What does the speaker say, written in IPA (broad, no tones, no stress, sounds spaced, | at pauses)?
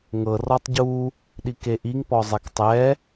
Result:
ŋ ɤ r ɔ tˤ ɟ u | ɗ i k e ʔ i ŋ p ɔ zˤ ɛ k tˤ ɛ